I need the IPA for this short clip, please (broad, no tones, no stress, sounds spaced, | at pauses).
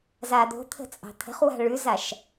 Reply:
z a d̪ o̤ t̪ʰ ə̤ t͡sʼ ɑ̤ t̪ʰ ə̤ χ w a̤ ɭ ʉ z a ʃ